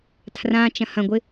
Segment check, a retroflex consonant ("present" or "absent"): absent